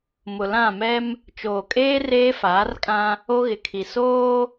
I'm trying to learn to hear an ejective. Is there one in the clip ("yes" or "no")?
yes